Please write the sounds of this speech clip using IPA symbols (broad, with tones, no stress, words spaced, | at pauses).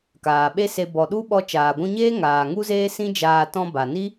kaː˨ɓe˦se˧ bɔ˨ɗu˦ɓɔ˧ t͡ʃaː˨ɡʷũ˧ɲeː˦ ŋaː˨ŋu˦zeː˦ sĩ˦d͡ʒaː˧ tɔ̃˧ba˨ni˦